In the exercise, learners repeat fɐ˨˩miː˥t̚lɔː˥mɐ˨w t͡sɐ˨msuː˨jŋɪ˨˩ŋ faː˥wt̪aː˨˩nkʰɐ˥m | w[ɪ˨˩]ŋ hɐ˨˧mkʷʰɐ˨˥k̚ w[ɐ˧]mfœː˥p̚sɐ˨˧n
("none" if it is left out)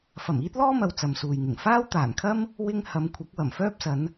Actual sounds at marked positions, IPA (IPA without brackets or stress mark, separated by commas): ɪ˥, ɐ˨˩